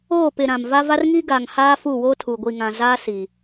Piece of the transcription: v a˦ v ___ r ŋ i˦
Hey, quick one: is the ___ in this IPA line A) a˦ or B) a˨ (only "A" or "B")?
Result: A